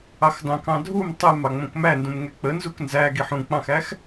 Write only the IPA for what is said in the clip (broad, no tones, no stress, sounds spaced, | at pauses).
ɑ x d ɑ̃ k ɑ̃ dʱ u m tˤ ɛ m ɑ ŋ͡m ə̃ k m æ n d ũ m ŋ ɛ k͡p ə n z u k n z æ ɡ i ħ ũ k͡p ɑ̃ x æ x